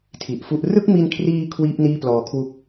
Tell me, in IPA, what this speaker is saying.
tʰ i˨˩ ʔ f u˥˩ ʔ r ɯ˥˩ k̚ m i˧ n kʰ r iː˧ kʰ w iː˥˩ p̚ n iː˥˩ p l ɔː˨˩ kʰ w u˦˥ k̚

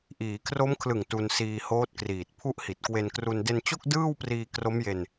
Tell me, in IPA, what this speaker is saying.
ʔ iː˩˦ kʰ r o˦˥ m kʰ l ɯ˨˩ ŋ t u˧ n s iː˧ h oː˦˥ t̚ k r iː˨˩ t̚ pʰ u˦˥ ʔ h i˨˩ t̚ k w e˧ n k r u˧ n d e˧ n t͡ɕ o˥˩ k̚ d ɯː˥˩ w p r iː˧ k r o˦˥ m j e˧ n

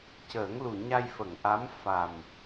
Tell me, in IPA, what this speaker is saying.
c əː˨˩˦ ŋ l u˨˩ ɲ a˧ j f ə˨˩˨ ŋ ʔ a˧˥ m f a˨˩ m

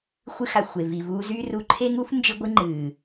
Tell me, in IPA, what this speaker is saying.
xʷ ɨ˧ x a˨ xʷ e˨ v i˨ v uː˧ z y˦ r u˧ ǃʰ e˦ ŋ u˦ f n d͡ʒ ɨ˧ ɡʷ ɨ˧ ŋ͡ǃ ɨː˨

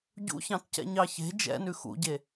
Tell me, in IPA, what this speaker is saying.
ɟ ṵ ç ɑ̃ t c ɛ̰ ɲ ɑ ç e̤ d͡ʒ ɛ̰ n ʉ x ṵ ɟ e

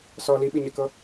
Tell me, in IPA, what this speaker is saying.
s ɔ l i ɓ i ɲ ɛ k ɤ

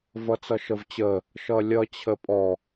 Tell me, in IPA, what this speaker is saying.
v ʌ t͡s ʌ ʃ ə v t͡ɕ ə | ʃ ʌ lʲ ʌ t͡ɕʰ ə pʼ ɔ

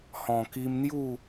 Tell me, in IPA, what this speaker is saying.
h ɔ̃˨˩ k i˧ m n̪ j u˥˧

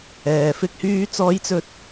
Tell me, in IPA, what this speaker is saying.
ɛː˨ f ɪ˥ k̚ h yː˥ t͡s ɔː˥ j t͡s ɵ˥ t̚

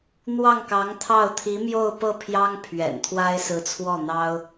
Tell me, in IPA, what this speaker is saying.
n̪ w ɑ˥˩ ŋ k ɑ˧˥ ŋ t̪ʰ ɑ˥˩ ʊ̯ t̪ʰ i˧˥ m j o˥˧ ʊ̯ p ɤ˥˩ pʰ j ɑ˥ ŋ pʰ ɥ ɛ̰˨˩ n t̪ʰ w a˥ ɪ̯ s ɹ̩˧˥ t͡sʰ w ɔ˥˩ n̪ ɑ˥ ʊ̯

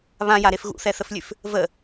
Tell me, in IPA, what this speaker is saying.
β ã j a ɾ e f ɣ ṵ θ ɛ θ ə f lʲ ʉ f | v ə

